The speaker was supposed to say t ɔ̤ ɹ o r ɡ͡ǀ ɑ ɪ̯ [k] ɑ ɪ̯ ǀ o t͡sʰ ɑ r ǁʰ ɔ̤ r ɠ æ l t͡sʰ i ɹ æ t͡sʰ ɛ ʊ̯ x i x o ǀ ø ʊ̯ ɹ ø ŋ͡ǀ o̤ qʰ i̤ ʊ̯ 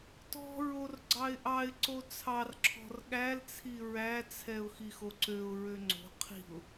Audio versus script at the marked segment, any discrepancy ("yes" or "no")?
yes